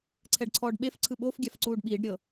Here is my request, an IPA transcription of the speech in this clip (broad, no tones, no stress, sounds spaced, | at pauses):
ǀʰ ɛ ɖ ǀʰ ɔː ɖ ɓ e f ǀʰ ɯ ɓ o f ɡʲ a f ǀ uː ɖ ɓ iː ɖ ɾʲ ɤ